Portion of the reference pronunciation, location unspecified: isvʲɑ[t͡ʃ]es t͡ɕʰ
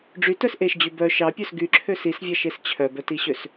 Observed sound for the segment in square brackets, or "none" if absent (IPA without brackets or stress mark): ʃ